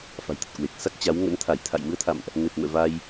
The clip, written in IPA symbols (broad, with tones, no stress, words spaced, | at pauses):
fa̤˨˩jt̪ə˨˩t̚kwe˨˩k̚ sa˦˥k̚t͡ɕa˨˦w ŋə̰˧˥n t̪ʰa˧˩jt̪ʰa̰˧˨jmɨ˨˦ə̯t̪ʰa̰˧˨mʔ | ne˨˩p̚mɛ̰˧˨ va˧j